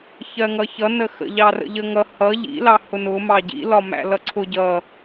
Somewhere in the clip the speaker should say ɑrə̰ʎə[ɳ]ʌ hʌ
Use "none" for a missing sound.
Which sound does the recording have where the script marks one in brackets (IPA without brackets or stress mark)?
ŋ